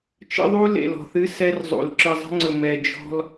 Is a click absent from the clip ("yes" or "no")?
no